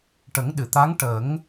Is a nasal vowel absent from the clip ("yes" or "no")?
yes